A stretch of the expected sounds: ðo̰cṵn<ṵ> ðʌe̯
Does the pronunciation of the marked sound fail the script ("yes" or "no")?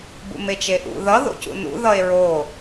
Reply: no